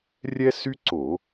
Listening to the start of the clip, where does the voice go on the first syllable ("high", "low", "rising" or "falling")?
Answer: high